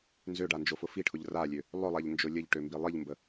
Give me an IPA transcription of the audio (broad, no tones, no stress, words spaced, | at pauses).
nzøɖa nd͡ʒofʊfiʈʰʊʎ ralʲø | lˠʊlˠaʎ nd͡ʒolʲəʎʈø mbilˠiʎmbə